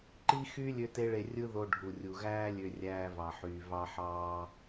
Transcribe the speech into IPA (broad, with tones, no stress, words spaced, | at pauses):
ǃi˦xy˦ lʲø˦te˦ɭe˧rʲɯ˦ ðo˧ɖʱu˨rʲu˨ɣæː˦ lʲø˧rʲæː˧vɑ˨ħyː˨ vɑ˧ħɑː˧